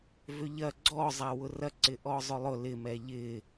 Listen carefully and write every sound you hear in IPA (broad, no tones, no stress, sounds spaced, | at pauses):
v ʏ ʎ ɐ ɡ͡ǀ ɔ zˤ a w ʊ r ɐ ǀ ɪ ʔ ɔ zˤ ʊ lˠ ʊ l ɪ m ɛ ʎ ɪ